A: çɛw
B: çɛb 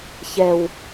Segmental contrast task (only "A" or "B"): A